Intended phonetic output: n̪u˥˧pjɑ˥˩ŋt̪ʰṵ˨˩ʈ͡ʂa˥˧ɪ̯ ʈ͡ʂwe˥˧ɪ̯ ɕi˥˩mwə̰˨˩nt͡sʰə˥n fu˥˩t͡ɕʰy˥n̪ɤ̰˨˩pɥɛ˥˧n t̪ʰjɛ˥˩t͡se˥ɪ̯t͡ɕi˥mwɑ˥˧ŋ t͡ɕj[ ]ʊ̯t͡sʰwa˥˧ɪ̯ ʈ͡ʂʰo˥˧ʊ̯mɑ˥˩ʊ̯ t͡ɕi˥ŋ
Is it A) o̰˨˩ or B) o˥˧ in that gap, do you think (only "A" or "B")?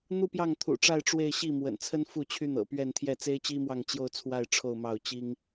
B